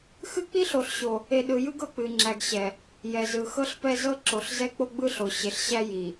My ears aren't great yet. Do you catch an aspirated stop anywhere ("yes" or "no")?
no